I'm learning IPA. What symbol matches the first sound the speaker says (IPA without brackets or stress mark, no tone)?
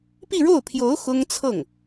p